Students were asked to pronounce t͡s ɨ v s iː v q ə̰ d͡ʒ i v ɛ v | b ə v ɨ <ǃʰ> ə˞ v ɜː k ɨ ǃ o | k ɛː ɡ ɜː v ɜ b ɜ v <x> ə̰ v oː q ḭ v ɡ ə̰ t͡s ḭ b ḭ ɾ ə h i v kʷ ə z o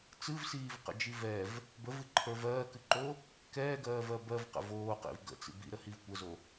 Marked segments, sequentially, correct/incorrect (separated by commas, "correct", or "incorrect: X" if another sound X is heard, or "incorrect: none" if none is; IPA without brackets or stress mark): correct, incorrect: q